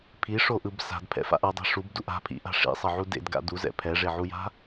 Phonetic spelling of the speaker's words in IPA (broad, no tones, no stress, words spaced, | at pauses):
pʰiʂoʔɯb sa̤dpʰɛ̰fa̰ʔ ʌdˤi̤ ʂubduʔ a̤pʰḭʔa̤ ʂḭsˤʌʕu dḛdɡa̰ duzɛ̰ pʰɛʐeʕuja̤